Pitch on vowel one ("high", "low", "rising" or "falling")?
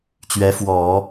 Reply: rising